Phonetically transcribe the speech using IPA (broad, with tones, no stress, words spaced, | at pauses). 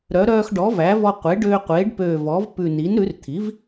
ɾœ˩˥ ɾœː˧xɖɔ˩˥væ˩˥vɔ˧ qʷe˩˥ɖøː˧ qʷeː˩˥ɖpøː˧˩ vɔ˩˥vpʉ˧˩ ni˩˥nɾʉ˩˥rt̪ʰi˩˥v